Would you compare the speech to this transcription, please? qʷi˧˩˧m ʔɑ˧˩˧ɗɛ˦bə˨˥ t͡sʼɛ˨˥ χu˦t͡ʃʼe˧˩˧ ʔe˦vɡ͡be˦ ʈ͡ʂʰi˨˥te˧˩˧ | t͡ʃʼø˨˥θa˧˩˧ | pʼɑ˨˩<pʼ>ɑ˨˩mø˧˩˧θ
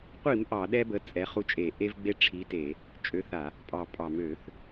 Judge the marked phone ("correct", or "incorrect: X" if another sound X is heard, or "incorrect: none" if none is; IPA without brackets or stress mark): correct